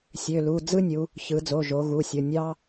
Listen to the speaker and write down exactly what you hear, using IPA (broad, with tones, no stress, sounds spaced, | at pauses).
sʲ ø˩˧˩ l u˩˧˩ d͡z ɯ˥ nʲ u˩˧ | ç ɯ˩˧ d͡z o˩˧˩ ʒ o˩˧ ɣ u˩˧˩ sʲ o˩˧˩ nʲ ɑ˥